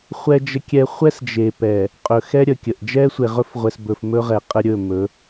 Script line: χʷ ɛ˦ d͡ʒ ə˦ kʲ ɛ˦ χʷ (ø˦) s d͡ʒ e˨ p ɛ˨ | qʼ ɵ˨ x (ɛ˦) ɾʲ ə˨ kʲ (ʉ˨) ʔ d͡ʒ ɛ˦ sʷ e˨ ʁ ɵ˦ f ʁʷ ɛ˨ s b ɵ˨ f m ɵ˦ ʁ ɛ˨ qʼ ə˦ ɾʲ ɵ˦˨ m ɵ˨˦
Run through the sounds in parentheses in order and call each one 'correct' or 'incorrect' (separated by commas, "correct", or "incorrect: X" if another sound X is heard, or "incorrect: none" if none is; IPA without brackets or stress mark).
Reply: incorrect: ɛ˦, correct, incorrect: ə˨